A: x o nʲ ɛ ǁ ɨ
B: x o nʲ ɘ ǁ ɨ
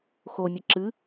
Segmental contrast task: B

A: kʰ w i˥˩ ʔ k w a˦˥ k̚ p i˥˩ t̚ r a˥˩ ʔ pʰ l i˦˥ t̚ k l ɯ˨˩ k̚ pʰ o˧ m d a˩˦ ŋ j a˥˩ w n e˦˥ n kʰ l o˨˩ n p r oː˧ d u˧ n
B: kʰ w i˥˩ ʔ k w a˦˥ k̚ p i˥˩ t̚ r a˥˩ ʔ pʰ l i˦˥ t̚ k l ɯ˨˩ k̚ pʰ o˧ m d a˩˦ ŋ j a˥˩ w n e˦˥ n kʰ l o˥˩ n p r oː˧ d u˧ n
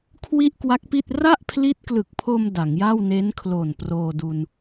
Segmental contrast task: A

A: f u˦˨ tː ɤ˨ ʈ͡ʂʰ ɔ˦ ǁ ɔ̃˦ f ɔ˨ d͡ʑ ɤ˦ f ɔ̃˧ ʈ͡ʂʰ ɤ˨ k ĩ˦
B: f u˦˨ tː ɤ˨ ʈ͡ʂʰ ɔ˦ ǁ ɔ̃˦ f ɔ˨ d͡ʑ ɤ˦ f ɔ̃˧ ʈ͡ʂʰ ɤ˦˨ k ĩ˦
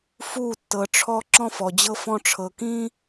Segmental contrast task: A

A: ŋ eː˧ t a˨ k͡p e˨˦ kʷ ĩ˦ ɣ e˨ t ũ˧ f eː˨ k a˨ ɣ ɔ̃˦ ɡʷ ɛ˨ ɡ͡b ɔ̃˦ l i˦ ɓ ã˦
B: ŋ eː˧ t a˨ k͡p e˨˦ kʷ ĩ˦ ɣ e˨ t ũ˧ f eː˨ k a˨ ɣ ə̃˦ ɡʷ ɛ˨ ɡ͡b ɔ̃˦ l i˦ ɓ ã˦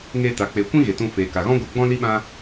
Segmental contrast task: A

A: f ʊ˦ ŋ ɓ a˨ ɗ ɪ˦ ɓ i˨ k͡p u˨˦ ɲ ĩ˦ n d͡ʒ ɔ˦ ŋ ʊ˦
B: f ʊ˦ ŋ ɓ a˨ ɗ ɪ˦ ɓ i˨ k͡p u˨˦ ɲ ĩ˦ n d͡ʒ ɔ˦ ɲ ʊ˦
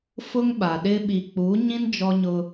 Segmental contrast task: B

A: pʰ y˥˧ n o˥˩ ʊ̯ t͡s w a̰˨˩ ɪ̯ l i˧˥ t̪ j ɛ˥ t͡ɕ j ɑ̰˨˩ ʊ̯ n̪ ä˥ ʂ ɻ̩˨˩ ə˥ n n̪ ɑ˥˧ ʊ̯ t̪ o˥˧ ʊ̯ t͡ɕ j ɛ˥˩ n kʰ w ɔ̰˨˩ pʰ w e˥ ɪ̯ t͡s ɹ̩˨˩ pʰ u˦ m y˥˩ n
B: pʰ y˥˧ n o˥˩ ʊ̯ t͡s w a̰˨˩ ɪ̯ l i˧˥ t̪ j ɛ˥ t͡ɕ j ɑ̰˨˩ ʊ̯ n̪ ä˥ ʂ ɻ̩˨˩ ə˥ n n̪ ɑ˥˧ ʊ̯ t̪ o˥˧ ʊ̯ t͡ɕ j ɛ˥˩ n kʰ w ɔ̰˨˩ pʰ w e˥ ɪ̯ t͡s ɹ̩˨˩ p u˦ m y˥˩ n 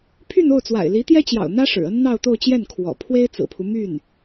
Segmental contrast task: A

